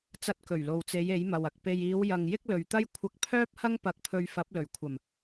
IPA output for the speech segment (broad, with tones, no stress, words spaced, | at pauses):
t͡sɐ˧t̚kɵ˨˩ɥlo˨wt͡se˨˧j e˨˥jmɐ˨wɐ˨k̚ pe˨jiː˨˧w jɐ˨ŋ jɪ˥k̚lɵ˨ɥt̪ɐ˥j kʷʰɐ˧k̚pʰœː˥p̚hɐ˥ŋ pɐ˧k̚pʰɵ˧ɥ fɐ˨˥p̚lɵ˨˩ɥkʷʰɐ˨˩m